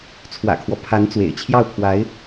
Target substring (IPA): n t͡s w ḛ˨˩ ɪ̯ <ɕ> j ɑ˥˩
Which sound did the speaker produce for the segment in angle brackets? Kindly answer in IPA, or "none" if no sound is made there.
t͡ɕʰ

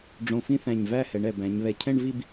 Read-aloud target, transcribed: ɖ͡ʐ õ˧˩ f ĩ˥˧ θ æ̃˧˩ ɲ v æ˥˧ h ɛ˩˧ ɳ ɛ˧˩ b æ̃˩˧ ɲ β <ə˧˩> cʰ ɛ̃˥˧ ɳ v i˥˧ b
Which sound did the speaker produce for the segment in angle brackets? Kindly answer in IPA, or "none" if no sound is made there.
ɛ˧˩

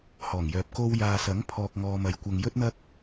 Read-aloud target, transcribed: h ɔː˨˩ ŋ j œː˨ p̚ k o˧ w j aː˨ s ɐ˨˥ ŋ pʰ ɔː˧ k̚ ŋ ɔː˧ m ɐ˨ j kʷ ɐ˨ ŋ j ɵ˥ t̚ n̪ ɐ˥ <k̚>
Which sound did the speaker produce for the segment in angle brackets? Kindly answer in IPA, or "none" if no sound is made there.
k̚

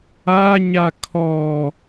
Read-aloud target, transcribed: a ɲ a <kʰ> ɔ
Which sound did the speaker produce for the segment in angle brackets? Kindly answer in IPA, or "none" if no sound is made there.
kʰ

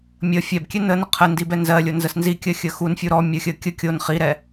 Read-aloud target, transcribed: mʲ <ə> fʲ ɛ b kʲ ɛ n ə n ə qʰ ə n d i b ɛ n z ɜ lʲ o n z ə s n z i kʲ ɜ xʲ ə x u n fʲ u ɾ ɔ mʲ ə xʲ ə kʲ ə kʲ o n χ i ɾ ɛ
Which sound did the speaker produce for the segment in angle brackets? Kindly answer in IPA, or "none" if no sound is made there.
ə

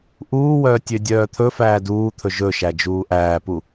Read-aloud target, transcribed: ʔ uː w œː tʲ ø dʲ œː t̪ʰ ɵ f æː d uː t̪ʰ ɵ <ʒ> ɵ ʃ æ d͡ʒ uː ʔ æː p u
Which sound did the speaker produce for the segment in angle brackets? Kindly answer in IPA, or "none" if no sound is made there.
ʒ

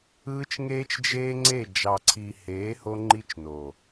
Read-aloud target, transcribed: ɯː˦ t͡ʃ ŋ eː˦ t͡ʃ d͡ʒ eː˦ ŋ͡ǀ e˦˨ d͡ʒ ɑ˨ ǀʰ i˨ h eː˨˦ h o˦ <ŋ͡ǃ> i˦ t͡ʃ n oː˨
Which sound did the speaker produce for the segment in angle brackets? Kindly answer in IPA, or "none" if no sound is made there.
ŋ͡ǃ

